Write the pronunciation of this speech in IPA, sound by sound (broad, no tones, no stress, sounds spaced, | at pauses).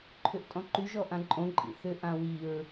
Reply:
ǃʰ ʏ ʔ tʼ ɔ̃ ǃ y ʒ ɔ ʔ ã ǃʼ õ ǃʼ ḭ θ ʏ ʔ ã w i ɹ